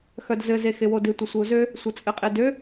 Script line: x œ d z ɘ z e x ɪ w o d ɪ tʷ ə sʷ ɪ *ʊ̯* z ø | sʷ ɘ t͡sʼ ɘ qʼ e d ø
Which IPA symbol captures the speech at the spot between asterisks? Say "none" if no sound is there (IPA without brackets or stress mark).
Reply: ʊ̯